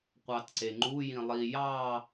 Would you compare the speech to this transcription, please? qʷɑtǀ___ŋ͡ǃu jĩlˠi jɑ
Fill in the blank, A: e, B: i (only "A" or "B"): A